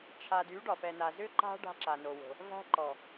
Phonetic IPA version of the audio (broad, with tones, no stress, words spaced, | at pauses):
t͡ʃʰa˨dy˨˦ ɖɒ˨fɛ˨na˨ zʏ˦ǃa̤˦ ɖa̤˦ǁa˨ no˨wo̤˨ | væ̤˦ǃɔ˨